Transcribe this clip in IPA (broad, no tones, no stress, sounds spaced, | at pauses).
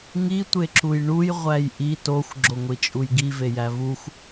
ŋ i tʷ e ǁ u j ɳ u j ʁʷ æ j ʔ i t o xʷ ɡ͡ǁ o ŋʷ i t͡ʃʼ u j ɡ i v e j æ v u xʷ